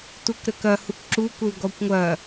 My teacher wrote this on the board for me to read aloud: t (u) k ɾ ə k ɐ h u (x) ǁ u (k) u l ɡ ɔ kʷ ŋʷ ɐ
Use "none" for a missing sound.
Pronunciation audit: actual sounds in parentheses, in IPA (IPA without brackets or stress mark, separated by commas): u, k, k